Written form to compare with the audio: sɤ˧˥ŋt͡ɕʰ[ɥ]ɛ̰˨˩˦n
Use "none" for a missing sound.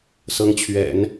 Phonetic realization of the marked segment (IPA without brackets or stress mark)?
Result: ɥ